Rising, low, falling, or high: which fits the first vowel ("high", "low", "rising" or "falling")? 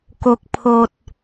low